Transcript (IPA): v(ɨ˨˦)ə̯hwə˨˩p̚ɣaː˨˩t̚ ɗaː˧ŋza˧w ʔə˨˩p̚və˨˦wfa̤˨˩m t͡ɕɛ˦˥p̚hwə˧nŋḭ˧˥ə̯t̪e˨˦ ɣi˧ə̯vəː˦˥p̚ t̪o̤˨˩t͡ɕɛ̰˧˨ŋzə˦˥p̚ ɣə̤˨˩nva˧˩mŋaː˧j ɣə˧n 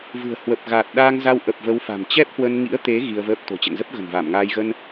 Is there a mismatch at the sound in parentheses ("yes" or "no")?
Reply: yes